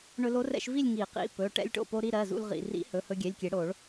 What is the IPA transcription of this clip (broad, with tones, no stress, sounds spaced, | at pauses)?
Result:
ɳ ɵ˧ l o˧˥ r ɛ̰˧ ʃ v i˥˧ lʲ ŋ i˨˩˦ q ḭ˩˧˩ p ɵ˩˧˩ ʈ ɛ̰˧ lʲ ʈ o̰˧˩ p o˧ ɾ i˥˧ ɾ ɜ˩˧˩ z ṵ˧ l ʁ ḭ˩˧˩ r ḭ˧˥ h ɵ˩˧˩ h ɵ˧ ɡʲ ɛ˩˧˩ lʲ kʲ e˨˩˦ ɽ o˨˩˦ ɭ